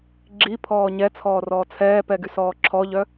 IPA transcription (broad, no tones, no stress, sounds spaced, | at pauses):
ɡ͡ǁ i pʰ ɔː ɲ ɛ t͡sʰ ɔː r ɔː t͡sʰ ɛː p ɛ ɡ y s ɔː ǁʰ ɔ ʎ œ